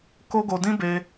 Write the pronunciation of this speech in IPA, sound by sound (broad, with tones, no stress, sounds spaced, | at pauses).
k o˦ ɡ o˧ d ĩ˦ b e˧